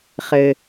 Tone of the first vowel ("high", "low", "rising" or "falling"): low